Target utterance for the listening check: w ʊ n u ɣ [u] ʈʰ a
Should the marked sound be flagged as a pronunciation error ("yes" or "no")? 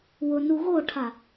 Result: yes